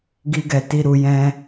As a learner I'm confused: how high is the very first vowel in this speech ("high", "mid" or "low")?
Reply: high